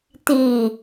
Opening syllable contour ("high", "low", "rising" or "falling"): low